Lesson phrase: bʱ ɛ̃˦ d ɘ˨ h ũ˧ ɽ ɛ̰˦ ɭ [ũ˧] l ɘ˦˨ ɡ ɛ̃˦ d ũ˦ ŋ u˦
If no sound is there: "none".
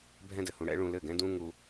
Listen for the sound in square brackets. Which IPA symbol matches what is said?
ũ˧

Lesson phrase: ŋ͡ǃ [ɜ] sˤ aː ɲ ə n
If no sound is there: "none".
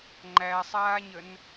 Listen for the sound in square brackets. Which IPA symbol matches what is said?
æ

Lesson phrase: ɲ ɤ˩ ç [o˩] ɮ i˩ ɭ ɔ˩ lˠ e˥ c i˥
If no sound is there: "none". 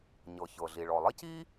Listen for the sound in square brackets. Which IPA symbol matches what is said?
ɤ˩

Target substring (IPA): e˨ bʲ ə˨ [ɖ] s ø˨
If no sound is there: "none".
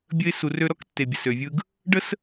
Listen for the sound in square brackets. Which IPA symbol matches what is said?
none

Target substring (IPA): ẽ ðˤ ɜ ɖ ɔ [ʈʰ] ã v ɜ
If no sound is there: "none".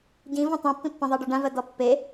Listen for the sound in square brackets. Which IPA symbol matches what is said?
ɖ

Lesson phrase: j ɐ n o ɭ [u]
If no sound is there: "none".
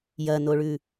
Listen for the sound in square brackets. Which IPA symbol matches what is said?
ʉ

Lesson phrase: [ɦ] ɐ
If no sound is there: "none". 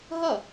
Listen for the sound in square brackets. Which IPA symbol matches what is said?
ɦ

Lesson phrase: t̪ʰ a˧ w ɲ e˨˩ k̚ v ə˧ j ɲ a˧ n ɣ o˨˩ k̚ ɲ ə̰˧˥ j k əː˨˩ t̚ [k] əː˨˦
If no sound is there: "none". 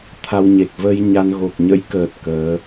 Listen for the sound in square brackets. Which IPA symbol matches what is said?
k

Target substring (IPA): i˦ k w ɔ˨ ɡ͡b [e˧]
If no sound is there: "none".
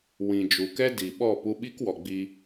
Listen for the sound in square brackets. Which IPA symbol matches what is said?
i˧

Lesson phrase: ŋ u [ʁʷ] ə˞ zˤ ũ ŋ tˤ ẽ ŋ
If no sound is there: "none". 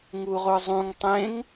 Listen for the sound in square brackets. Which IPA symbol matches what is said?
ʁʷ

